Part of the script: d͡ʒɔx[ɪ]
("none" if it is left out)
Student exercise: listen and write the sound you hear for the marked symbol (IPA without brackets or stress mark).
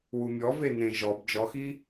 i